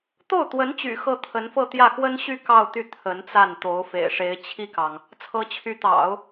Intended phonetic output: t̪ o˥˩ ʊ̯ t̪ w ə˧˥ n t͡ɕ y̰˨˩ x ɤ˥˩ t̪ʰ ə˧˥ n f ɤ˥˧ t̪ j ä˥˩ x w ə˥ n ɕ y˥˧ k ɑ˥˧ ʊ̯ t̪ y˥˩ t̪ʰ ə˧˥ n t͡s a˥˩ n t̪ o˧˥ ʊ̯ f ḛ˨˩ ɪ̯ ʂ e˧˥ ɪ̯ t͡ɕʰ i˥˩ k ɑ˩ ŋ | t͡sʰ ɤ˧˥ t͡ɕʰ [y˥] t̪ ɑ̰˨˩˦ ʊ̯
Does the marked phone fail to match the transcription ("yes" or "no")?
yes